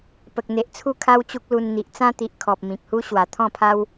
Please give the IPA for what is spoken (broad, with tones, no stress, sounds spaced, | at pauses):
p ə˨ k̚ n̪ e˨ ʔ t͡sʰ u˥˧ kʰ a˦ w t͡ɕ u˦ k̚ l u˧ n n̪ i˨ ʔ t͡s ã˦ t̪ i˨ ʔ kʰ ɔ˨ p̚ m ĩ˨ k̚ h u˦ ɕ w a˨˩ t̪ʰ ɔ̃˥˧ pʰ a˦ w